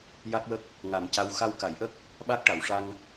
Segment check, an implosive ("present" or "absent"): present